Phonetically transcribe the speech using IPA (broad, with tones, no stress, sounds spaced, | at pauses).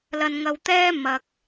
l ɐ˧ n ŋ ɐ˧ w t̪ ɛː˥ m ɐ˧ k̚